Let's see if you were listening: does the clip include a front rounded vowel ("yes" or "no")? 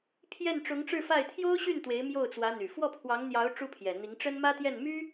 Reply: yes